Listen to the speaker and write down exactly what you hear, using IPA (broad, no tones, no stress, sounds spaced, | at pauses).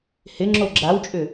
h ɪ ŋ͡ǁ o ɡ͡ǁ a w t͡ʃʼ ʏ